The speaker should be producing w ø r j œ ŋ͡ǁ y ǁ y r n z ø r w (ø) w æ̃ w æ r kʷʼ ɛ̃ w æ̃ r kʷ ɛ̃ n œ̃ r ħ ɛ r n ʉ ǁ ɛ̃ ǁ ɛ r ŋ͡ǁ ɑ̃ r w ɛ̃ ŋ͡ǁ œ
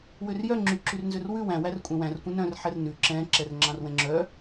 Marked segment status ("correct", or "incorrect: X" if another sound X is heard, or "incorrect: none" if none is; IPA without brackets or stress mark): incorrect: ʉ